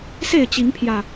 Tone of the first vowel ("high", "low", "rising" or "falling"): falling